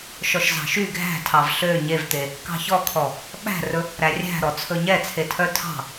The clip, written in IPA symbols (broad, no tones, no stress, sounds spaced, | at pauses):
ʃ ɔ ʃ z ɑ̤ ʃ y ɡʱ æ̤ tʰ ɑ v ɬ ø ɲ e v t̪ e | k ɑ̤ ç ɔ kʰ ɔ | ɓ æ̤ r ɵ | ɾ æ rʲ æ̤ ɾ ɔ t͡sʰ ɵ ɲ ɛ t͡sʰ e tʰ œ tʰ ɑ̤